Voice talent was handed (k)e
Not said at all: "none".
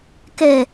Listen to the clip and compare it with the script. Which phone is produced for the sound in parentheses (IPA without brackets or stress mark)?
k